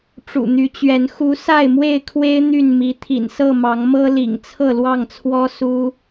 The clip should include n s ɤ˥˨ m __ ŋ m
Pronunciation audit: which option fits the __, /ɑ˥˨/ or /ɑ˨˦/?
ɑ˨˦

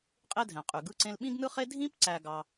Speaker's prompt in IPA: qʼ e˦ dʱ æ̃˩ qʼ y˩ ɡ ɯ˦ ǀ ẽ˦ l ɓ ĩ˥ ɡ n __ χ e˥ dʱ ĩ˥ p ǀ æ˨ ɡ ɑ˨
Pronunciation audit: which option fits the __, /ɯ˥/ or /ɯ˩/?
ɯ˥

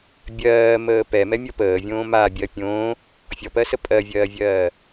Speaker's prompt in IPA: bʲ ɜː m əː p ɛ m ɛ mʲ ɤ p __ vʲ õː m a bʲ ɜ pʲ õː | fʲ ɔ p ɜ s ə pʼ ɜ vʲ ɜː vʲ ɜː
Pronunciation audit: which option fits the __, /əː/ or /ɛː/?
əː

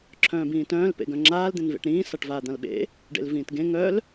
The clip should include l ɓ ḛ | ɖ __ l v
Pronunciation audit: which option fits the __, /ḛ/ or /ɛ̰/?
ḛ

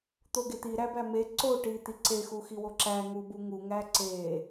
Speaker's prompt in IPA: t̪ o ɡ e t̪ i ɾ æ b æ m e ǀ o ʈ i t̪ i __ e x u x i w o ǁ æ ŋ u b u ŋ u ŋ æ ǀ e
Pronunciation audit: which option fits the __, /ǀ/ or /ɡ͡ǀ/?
ǀ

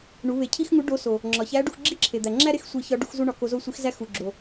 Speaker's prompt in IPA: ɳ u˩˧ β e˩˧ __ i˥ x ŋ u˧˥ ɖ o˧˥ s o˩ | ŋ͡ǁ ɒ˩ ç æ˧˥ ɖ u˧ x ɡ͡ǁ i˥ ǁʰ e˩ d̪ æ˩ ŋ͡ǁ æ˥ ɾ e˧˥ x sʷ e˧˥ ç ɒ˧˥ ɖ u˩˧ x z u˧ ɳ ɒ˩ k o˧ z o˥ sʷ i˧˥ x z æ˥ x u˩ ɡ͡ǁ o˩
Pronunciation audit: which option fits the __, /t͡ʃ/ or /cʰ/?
cʰ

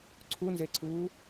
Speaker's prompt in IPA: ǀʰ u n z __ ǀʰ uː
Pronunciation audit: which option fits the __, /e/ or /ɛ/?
e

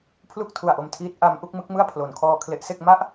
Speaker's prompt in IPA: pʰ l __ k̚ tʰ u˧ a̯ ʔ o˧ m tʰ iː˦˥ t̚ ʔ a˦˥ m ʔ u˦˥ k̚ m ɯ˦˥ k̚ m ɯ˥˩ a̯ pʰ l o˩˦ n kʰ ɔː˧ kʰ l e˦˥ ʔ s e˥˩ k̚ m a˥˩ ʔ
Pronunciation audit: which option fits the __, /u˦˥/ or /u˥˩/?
u˥˩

